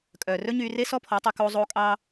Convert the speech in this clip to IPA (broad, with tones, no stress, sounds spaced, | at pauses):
kʼ œː˨ r ɵ˦ ɲ yː˧ r e˦ s ɔ˦ pʰ ɔ˨˦ tˤ ɵ˧ k oː˦ zˤ oː˦ kʼ ɑ˦